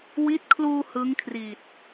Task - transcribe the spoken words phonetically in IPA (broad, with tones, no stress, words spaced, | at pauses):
wi˦˥t̚kʰluː˧ hɯ˦˥ŋkʰri˨˩t̚